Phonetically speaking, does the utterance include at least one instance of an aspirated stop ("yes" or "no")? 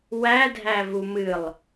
no